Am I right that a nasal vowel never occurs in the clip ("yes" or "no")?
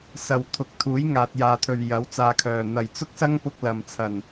yes